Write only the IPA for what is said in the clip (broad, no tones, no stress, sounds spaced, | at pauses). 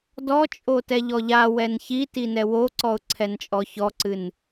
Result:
d ɔ t͡ʃʼ o t ɛ ʎ ɔ ʎ a w ɛ n ç i t i n ɛ w o ǀ ɔ ʊ̯ ǀʰ ɛ n t͡ʃʼ ɔ ç ɔ ǀ ɨ n